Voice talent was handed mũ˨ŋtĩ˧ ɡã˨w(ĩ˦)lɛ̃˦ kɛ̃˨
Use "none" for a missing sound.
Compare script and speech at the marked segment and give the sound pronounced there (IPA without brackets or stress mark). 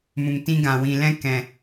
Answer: ĩ˨